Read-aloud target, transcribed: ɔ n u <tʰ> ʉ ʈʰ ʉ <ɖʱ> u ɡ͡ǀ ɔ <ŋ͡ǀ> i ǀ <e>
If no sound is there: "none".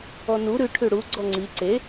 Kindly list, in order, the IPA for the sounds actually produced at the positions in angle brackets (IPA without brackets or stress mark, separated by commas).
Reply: ɾ, ɽ, ŋ͡ǀ, e